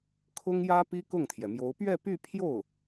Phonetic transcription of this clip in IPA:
kʰ ʊ˥ ŋ j ä˥ p i˥ k ʊ˥˩ ŋ t̪ʰ j ɛ˩ m j o˧˥ ʊ̯ p ɥ ɛ˥˧ p y˥˧ pʰ j o˥˩ ʊ̯

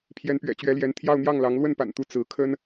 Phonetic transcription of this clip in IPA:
pʰ j ɛ˧˥ n p ɥ ɛ̰˨˩ t͡ɕ ɥ ɛ˧˥ l j ɛ˧˥ n t̪ʰ j ɑ˥˧ ʊ̯ n̪ j ɑ˥˩ ŋ l ɑ˧˥ ŋ l w ə˥˩ n p a̰˨˩ n t̪ u˧˥ t͡s ɹ̩˧˥ kʰ ə˥ n

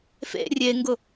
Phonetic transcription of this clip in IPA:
f ḛ rʲ e ŋ ɡ ʊ

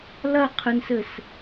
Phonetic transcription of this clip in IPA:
l ɐ qʰ ɨ n s ɘ s

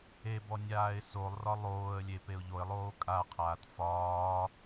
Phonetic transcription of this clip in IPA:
e b ɔ nʲ aː ɪ̯ s o lˠ r ɒ lˠ oː ə̯ lʲ e p e ʊ̯ ʎ o ɪ̯ lˠ oː kʼ a qʰ aː t f ɒː

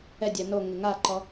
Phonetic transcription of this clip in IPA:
ɛ dʲ ɛ n o ŋ ɪ ŋ a ǃ ɔ

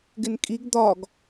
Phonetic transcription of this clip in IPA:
ɡ ɪ n kʼ i ɡ d̪ ɒ ɡ

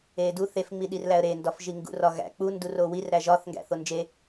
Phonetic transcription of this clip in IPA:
e d u θ e f ŋ͡m i ɗ i r l æ ə̯ ɾ e n d ɒ f ʒ i ŋ ɡ ṵ r ɒ ɣ æ̰ k͡p u n d u r o w i r ɾ æ ʒ ɒ θ ŋ ɡ æ̰ θ o n d͡ʒ e

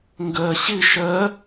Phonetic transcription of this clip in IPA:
ŋ ɡ ɜ ɕ ɪ ʃ ɜ

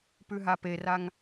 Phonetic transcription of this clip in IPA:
p ʉ ɦ a p e r a ŋ

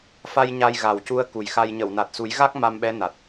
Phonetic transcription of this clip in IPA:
f a˧ j ɲ a˧ j ɣ a˨˩ w c u˧ ə̯ k u˨˩ j x a˧ j ɲ ə˨˩˨ w n a˨˩ t̚ s u˨˩˦ j ɣ a˦˥ k̚ m a˧ m ɓ ɛ˧˥ n a˨˩ t̚

